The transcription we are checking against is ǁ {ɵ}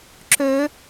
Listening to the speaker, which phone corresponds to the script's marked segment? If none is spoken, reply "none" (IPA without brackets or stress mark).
ø